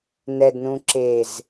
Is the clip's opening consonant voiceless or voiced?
voiced